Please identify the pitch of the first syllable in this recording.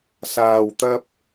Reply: low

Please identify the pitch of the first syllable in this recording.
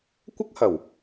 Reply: high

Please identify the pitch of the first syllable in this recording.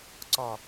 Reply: low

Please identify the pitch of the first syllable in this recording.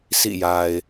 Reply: falling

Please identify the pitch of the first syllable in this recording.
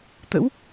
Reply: rising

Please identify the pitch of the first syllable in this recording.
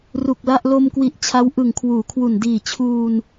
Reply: low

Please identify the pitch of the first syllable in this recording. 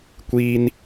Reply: high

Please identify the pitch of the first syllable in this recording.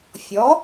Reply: rising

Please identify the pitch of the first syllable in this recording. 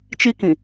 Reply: high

